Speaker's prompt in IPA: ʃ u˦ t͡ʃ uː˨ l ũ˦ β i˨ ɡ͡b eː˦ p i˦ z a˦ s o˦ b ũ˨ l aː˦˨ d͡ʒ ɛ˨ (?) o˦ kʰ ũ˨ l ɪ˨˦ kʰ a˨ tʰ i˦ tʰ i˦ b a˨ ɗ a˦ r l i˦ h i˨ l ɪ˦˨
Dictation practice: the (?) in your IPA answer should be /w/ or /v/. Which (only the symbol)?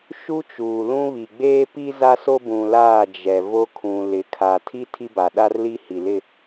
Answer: v